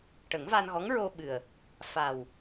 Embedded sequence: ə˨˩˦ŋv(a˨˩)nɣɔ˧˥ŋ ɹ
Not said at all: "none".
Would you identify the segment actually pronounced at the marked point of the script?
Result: a˧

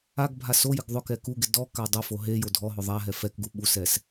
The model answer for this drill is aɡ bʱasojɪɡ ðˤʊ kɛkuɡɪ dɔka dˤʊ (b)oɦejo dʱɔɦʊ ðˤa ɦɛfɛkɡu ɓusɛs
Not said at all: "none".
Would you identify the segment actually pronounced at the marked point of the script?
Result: f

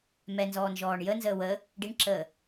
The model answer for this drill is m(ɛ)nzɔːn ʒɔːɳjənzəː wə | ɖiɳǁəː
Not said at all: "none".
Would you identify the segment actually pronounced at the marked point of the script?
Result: ɛ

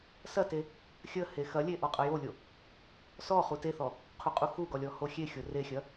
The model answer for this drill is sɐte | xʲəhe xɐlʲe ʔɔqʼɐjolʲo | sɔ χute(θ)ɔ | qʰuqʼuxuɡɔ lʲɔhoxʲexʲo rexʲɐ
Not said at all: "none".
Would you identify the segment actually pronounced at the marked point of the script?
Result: θ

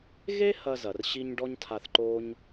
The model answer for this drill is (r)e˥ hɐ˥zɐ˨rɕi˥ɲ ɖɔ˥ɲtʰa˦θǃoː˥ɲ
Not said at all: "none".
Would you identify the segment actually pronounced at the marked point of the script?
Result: ɣ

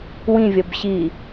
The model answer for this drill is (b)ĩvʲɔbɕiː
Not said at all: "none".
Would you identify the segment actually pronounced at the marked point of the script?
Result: w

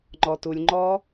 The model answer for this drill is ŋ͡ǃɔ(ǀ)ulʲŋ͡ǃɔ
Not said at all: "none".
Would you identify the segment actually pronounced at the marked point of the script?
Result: t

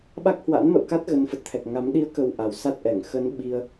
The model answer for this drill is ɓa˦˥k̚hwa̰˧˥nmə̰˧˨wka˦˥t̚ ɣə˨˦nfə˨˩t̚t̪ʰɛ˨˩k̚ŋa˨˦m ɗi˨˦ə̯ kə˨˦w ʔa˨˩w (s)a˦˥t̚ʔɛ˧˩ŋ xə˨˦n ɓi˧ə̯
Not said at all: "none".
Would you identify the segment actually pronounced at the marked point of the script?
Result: s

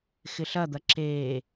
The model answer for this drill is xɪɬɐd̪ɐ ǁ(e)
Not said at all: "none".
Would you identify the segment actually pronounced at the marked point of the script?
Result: e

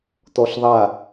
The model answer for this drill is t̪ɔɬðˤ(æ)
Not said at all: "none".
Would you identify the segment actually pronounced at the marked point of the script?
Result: a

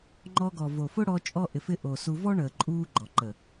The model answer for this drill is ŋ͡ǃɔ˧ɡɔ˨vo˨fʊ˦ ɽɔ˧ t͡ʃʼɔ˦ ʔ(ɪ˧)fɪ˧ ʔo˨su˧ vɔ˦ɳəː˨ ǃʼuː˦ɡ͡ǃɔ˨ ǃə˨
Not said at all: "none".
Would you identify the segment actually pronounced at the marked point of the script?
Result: ɪ˨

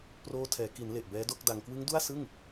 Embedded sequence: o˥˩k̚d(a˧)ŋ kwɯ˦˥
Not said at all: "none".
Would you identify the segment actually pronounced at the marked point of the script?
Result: a˧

